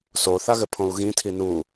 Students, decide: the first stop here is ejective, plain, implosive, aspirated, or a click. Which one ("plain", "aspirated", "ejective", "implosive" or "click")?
aspirated